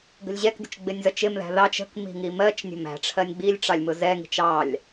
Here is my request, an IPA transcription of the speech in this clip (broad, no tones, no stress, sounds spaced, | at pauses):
ɡ ə̤ lʲ ʑ ɛ k dʲ ʊ t͡ʃ ɡ͡b ɪ nʲ z ʌ t͡ʃ ɪ m ð æ̤ ð ɑ t͡ʃ ə̤ k m i̤ ŋ i m ɜ t͡ʃ nʲ ə̤ m æ̤ ʈ͡ʂʰ ɜ nʲ ɡ͡b i lʲ ʈ͡ʂ ɑ lʲ m ʊ z ɛ ŋ i̤ t͡ʃ ɑ lʲ